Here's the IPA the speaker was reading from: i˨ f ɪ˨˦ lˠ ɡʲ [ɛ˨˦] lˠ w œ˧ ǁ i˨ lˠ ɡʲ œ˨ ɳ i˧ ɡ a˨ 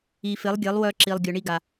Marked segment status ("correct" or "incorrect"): correct